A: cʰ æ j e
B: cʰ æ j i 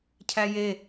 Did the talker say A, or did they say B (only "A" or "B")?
A